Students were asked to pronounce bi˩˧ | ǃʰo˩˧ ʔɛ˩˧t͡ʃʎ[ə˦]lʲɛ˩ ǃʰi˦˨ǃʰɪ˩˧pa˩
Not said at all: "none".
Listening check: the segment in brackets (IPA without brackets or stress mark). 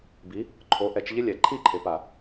ɪ˦